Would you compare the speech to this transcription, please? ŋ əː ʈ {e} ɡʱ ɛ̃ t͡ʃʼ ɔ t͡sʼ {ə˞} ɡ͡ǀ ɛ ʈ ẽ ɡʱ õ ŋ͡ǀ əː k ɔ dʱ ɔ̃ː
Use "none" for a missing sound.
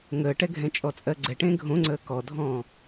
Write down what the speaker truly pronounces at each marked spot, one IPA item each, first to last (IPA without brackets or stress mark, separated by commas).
ɛ, ɜ